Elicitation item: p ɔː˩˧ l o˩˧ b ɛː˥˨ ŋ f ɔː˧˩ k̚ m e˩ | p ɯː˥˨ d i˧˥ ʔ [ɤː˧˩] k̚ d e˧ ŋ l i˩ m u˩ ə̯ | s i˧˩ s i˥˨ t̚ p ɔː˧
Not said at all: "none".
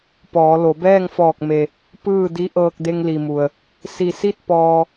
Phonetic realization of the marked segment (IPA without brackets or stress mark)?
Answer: ɤː˧